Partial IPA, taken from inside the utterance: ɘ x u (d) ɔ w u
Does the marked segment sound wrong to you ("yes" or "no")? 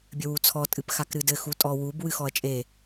yes